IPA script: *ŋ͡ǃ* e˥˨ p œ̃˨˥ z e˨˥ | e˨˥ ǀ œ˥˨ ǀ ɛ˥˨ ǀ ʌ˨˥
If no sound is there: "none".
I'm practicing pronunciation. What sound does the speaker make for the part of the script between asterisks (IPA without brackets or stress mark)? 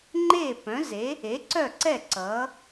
ŋ͡ǃ